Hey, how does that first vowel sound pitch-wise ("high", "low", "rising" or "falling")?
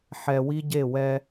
low